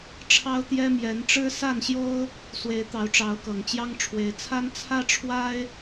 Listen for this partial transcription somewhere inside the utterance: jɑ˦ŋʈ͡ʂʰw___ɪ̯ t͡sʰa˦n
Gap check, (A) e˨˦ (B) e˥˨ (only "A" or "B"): A